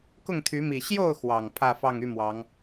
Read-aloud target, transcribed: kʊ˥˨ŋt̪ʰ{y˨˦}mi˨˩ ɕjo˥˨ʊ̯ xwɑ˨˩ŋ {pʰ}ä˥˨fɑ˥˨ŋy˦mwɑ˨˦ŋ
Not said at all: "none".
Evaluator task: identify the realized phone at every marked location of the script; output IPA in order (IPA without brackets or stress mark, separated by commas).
y˨˦, pʰ